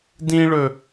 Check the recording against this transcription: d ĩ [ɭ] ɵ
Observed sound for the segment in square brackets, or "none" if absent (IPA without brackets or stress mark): ɭ